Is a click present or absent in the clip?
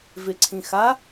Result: present